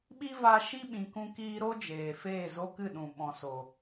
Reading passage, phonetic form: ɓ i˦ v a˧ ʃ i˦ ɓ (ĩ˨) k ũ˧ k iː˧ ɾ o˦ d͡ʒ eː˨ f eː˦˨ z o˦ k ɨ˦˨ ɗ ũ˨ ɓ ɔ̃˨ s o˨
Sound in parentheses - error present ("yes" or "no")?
no